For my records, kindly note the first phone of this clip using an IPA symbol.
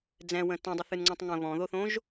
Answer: d͡z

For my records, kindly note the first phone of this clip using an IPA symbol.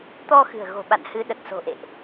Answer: t̪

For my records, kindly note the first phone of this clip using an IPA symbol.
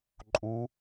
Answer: ǃʼ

